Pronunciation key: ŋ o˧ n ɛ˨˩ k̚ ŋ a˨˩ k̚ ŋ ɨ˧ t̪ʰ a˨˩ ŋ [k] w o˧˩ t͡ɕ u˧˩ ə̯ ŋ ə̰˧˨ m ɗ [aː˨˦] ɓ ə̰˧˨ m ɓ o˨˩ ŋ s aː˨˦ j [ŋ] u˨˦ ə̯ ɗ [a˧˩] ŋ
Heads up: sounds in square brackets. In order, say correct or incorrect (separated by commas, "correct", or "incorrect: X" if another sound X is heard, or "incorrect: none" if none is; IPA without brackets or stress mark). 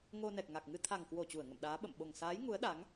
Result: correct, correct, correct, incorrect: a˨˦